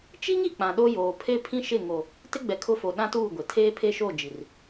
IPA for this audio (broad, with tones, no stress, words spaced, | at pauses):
t͡ʃi˦ŋi˨ k͡pã˨ɗo˦joː˨ pʰe˦pʰĩ˦ʃɪ˦˨ ŋo˨ | tɪ˦ɡ͡bɛ˨kʰʊ˦fo˨ ɗã˦tuː˦˨ ɡʷɪ˨ tʰeː˦pʰe˦ʃo˦˨d͡ʒi˨r